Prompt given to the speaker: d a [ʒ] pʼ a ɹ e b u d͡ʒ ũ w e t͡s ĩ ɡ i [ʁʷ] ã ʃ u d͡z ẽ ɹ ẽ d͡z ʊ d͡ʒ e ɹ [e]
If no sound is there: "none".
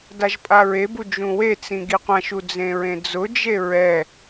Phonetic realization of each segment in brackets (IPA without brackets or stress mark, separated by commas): ʒ, qʷ, ɛ